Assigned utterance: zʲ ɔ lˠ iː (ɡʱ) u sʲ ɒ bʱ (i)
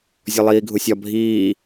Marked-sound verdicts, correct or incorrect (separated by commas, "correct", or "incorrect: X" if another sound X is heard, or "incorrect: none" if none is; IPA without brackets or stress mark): correct, incorrect: iː